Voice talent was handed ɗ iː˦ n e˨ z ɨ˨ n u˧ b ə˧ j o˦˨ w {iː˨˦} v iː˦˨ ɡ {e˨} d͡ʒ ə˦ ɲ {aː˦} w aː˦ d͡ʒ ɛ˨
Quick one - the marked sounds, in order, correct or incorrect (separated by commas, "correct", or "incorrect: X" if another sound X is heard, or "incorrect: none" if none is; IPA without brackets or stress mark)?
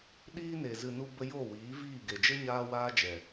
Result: correct, correct, correct